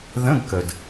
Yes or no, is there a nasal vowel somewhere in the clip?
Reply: yes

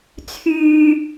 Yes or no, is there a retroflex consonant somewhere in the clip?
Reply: no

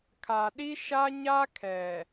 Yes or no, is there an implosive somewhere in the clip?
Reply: yes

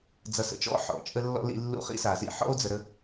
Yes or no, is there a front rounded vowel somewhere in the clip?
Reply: no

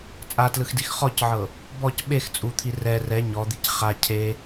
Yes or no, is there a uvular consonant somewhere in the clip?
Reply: yes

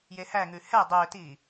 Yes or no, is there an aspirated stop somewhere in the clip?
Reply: no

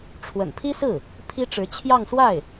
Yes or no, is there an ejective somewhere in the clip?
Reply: no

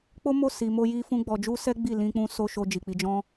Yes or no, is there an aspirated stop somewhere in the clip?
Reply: no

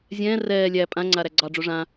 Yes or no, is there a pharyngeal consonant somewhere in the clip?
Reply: no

